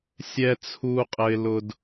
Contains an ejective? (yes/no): yes